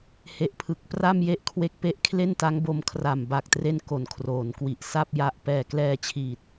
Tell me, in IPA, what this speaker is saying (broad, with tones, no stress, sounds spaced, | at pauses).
h e˨˩ ʔ pʰ ɯ˨˩ k̚ p r a˥˩ m j e˥˩ ʔ kʰ w e˦˥ k̚ p e˦˥ ʔ kʰ l e˥˩ n t a˦˥ ŋ b o˧ m kʰ r a˨˩ m b a˨˩ k̚ t r e˦˥ n k o˩˦ n kʰ r oː˩˦ n k w i˨˩ ʔ s a˥˩ p̚ j a˦˥ ʔ p ɛː˨˩ k l ɛː˧ t͡ɕʰ iː˨˩ t̚